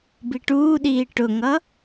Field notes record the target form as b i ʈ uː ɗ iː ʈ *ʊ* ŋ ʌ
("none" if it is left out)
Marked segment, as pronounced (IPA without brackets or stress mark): ʊ